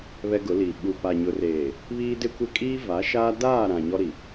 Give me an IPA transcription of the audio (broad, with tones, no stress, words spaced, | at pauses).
βɛ˦ɡʊ˨˦liː˨ ɓu˨pa˨ ɲʊ˨reː˨ | βiː˦dɪ˦kʷɪ˦ kʼiː˦va˨˦ʃaː˦ daː˦˨ɾã˨ ɲɔ˦ɾi˨